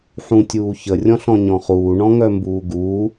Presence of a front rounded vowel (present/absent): present